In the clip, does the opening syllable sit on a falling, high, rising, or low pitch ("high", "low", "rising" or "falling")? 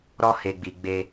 high